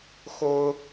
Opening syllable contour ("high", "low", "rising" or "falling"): high